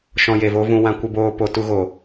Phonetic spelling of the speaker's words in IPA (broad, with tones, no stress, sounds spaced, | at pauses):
ʃ ɔ̃˧ j e˨ v o˦ v ũ˧ w ã˧ kʷ ə˧ b oː˧ p o˨ t u˧ ɣ o˨